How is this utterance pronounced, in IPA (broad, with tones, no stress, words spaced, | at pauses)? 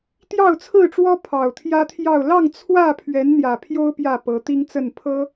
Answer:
t̪jɑ˥˨ʊ̯t͡sʰɹ̩˥˨ʈ͡ʂwɔ˦ pʰɑ˨˩ʊ̯t̪ʰjä˦t̪ʰjɑ˥˨ʊ̯ lɑ˥˨ŋt͡sʰwä˥˨pʰɥɛ˨˦n n̪jä˨˩pʰjo˦ʊ̯ pjä˥˨pɤ˨˦t̪i˦ŋt͡sə˥˨n pʰɤ˦